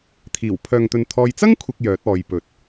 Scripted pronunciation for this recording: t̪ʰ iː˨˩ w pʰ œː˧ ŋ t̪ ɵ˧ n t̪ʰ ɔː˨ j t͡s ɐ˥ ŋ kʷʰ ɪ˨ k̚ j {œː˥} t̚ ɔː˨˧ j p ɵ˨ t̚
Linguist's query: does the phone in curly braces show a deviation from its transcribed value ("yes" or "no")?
yes